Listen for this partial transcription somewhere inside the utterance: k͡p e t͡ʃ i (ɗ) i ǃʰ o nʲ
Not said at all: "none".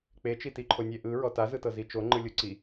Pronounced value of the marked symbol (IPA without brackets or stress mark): t